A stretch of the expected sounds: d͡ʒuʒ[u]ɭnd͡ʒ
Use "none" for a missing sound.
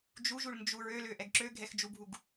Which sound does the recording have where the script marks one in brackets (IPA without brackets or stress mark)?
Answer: u